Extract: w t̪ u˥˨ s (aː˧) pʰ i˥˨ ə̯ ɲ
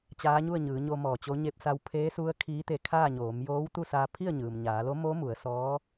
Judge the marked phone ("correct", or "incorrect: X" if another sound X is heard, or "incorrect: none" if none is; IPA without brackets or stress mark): correct